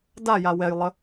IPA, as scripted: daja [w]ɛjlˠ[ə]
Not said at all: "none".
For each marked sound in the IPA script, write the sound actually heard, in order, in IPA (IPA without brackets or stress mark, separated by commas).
w, ə